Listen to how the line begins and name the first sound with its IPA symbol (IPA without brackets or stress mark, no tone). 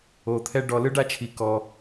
o